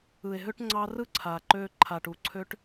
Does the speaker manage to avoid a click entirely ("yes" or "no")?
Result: no